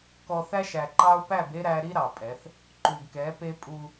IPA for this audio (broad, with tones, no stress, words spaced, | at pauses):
kɔ˨θæ˦ʃ æ˨ǃɑ˦ʊ̯ pæ˦˨be˦ ɾæ˦ ɾi˦ ɾɑ˨pʼɛ˨˦θ | ǃu˨ɡkɛ˨˦pe˦ pʼu˦